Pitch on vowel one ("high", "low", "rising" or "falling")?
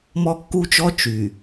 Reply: high